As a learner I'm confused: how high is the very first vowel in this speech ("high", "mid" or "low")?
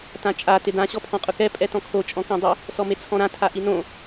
low